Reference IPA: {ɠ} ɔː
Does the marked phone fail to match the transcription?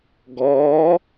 yes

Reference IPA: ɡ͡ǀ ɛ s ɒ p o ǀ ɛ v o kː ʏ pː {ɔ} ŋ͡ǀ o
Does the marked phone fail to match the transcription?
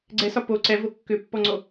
no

